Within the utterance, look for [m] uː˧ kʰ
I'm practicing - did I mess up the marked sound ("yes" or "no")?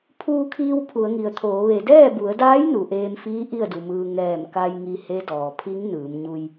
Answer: yes